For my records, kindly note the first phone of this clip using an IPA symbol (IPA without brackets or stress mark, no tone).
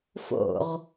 f